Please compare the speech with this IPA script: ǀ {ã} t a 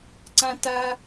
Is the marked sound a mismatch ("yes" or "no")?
no